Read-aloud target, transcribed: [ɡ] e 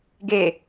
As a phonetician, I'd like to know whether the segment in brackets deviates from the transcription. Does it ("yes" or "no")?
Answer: no